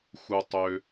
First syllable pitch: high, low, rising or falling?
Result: low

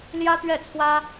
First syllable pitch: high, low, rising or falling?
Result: high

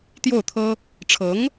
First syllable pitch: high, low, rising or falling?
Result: falling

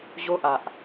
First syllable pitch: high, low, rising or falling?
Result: high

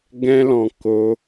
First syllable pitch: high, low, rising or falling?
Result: high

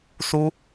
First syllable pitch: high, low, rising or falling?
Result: high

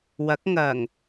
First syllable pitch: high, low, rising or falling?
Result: rising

